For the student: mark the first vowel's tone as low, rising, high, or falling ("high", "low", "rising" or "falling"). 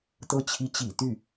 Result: falling